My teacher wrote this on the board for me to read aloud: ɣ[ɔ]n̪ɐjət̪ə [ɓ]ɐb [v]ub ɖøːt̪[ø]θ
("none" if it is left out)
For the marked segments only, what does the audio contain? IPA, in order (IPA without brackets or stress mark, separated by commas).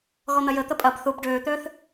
ɔ, pʼ, θ, øː